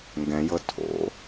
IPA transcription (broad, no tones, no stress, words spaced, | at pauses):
ŋɡɛ̃jɤ tʰo̰